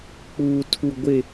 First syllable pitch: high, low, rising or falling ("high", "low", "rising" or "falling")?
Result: high